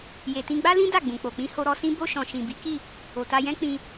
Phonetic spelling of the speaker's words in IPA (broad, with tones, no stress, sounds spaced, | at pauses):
j e˨ t ĩ˧ ɡ͡b a˦ l ĩ˦ d a˦˨ ɡ͡b ũ˨ k͡p o˨ k͡p ĩ˧ h o˧ ɾ ɔ˧ s ĩ˦ b o˧ ʃ ɔ̃˨ ʃ ĩ˨ b i˨˦ k i˦˨ | o˨ t a˧ j ɛ̃˦ k͡p ĩ˧